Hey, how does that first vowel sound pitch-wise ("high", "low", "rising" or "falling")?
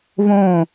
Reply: falling